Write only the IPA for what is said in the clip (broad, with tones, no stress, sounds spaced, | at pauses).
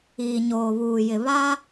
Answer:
iː˨ ɲ oː˨ β uː˨ j ɪ˨ β a˦